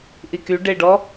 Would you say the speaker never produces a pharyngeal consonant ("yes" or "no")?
yes